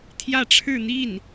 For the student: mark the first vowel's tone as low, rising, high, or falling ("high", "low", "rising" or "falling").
falling